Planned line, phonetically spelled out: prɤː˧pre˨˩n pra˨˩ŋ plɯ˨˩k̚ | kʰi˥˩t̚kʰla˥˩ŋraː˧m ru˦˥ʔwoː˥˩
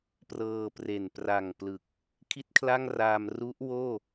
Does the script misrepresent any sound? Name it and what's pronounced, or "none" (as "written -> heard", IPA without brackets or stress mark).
none